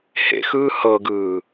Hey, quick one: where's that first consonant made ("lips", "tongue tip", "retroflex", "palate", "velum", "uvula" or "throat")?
throat